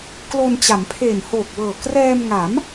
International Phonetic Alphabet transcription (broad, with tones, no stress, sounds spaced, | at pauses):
k l o˧ n t͡ɕ a˩˦ m pʰ e˨˩ n h oː˨˩ k̚ w ɤː˨˩ k r ɛː˧ m ŋ a˩˦ m